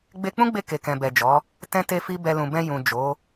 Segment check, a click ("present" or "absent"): absent